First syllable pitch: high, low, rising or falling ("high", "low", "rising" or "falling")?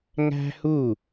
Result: high